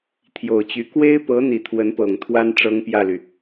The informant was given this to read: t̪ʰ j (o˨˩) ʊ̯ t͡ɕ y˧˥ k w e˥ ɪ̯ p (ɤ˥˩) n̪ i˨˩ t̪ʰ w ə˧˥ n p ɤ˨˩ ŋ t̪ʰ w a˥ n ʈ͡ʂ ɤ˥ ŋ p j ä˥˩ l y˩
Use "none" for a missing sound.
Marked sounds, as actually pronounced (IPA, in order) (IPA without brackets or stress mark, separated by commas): o˨˩, ɤ˧˥